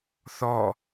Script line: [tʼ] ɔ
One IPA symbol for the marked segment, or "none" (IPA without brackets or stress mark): θ